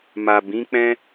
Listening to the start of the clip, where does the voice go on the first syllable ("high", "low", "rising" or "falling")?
low